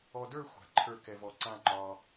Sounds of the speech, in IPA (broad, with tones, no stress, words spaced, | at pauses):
ɔ˧ də˞˥˧xʷa̤˩˧ǃʰə˞˧˩ kɛ˧vɔ˧˩ǀã˥˧ ŋ͡ǃɒ˧